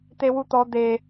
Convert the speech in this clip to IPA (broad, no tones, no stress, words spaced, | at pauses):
t̪ewut̪ɔ d̪e